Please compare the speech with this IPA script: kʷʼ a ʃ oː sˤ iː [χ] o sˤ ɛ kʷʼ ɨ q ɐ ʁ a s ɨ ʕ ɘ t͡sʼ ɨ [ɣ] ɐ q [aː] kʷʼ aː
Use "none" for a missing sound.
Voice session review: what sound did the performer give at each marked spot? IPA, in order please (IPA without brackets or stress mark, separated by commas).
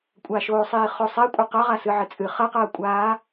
χ, χ, ɐː